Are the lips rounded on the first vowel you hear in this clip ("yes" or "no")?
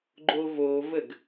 yes